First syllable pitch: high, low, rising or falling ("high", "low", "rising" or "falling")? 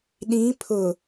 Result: rising